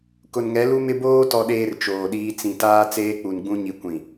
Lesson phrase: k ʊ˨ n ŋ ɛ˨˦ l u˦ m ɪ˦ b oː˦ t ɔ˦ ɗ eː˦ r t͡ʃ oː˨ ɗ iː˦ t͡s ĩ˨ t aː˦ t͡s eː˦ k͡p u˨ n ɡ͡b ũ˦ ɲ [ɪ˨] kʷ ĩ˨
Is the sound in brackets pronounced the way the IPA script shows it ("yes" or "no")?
no